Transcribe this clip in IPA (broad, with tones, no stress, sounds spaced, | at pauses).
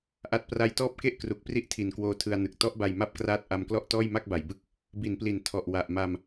ʔ a˦˥ t̚ p r a˥˩ j t ɔː˦˥ p̚ k e˥˩ ʔ k r u˨˩ k̚ p r i˦˥ ʔ tʰ i˨˩ n k w oː˧ tʰ ɯ˧ a̯ n ɯ˨˩ k̚ t ɔ˦˥ ʔ b a˧ j m a˥˩ p̚ k r aː˦˥ t̚ ʔ a˧ m k l ɔ˥˩ ʔ t ɔː˥˩ j m a˥˩ k̚ b a˩˦ j b ɯ˥˩ k̚ | b i˩˦ n p l i˩˦ n tʰ ɔ˨˩ ʔ w a˨˩ ʔ m a˧ m